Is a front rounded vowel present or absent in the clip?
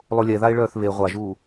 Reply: present